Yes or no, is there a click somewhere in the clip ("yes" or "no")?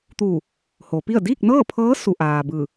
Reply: no